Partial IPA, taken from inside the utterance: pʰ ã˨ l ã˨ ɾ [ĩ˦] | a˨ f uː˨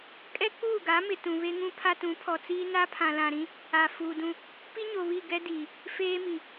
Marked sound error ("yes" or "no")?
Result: no